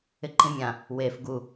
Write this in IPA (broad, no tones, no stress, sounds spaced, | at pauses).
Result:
ɪ ǃ ĩ mʲ ã | w e f ɡ u